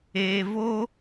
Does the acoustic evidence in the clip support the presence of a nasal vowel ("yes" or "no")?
no